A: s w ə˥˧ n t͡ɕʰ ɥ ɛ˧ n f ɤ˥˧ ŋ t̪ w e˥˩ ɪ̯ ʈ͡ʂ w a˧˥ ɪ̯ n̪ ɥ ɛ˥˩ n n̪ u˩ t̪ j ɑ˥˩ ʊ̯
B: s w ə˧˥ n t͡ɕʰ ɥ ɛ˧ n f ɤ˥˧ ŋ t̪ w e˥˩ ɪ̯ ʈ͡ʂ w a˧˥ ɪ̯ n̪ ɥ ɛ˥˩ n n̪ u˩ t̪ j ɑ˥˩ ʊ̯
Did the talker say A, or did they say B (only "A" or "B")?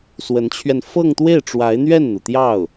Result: B